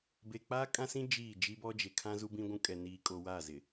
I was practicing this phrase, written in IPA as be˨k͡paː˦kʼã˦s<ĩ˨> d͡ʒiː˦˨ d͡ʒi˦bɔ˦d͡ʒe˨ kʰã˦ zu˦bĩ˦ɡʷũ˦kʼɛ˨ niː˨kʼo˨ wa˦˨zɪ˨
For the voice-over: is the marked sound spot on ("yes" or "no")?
no